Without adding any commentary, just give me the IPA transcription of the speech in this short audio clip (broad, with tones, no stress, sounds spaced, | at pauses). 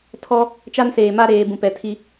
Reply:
tʰ ɔ˦ | t͡ʃ a˦ n s eː˨ m a˦ ɾ eː˨ b ũ˨ p ɛ˨ tʰ i˦